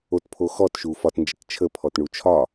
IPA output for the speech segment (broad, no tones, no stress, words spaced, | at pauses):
otpʰo xɔtʃu fɒtnd͡ʒət t͡ʃʰəpʰɔtɳu t͡ʃʰɒ